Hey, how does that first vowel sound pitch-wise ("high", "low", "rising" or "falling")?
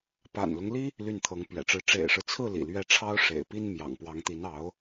low